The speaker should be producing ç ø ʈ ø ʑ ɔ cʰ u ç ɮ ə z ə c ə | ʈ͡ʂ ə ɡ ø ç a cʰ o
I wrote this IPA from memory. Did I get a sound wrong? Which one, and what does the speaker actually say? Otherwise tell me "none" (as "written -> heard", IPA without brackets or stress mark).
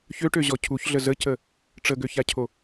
none